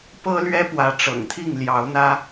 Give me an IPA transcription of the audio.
pɤ˦lɥɛ˦ pwä˨˦ʈ͡ʂɤ̰˨˩ŋt̪ʰi˥˨ŋ ljɑ˨˦ʊ̯n̪ä˦

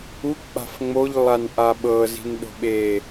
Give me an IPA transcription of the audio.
uk͡pa̤f ŋ͡moʎlˠanʔa ɓɤzi̤nɗo̤ ɓe

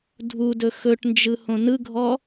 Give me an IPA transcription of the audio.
dʱudɵ xɵʈnd͡ʒɯ hõnɯɡʱɔ

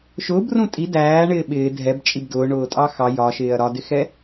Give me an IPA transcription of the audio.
ʃʊːbrũ tʼi dæːɳɪː ɓɪː dʱɛbt͡ʃʼib dʊːɳʊːtʼɑ xɑ jɒʃɪːɐ̯ ɾɒdɪxɛ

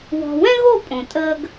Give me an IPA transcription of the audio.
wɔ̤˨wɛ̃˦ɣo˦˨ pʼõ˨tʼəː˧ɡ

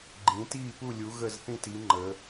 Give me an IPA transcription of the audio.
ɡ͡ǃĩ˨˦ tiː˦˨pu˦˨ lʲu˨˦ ɣə˦˨zθĩ˦˨ti˨˦ ŋ͡ǃə˨˦

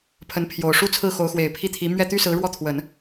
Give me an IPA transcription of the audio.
pʰə˧˥npʰjo˨˩ʊ̯ʂu˥t͡sʰɹ̩˥˩ xo˧˥ʊ̯xwe˨˩ɪ̯pʰi˥˩t̪ʰi˧˥ mɥɛ˥˩t̪y˥sɹ̩˧˥ ɻwɔ˥˩t̪ʰwə˨˩˦n

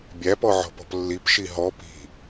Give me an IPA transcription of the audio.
bʲæpɔʕɔ̤pɔ̤p lːipʃi ɦɔ pi̤

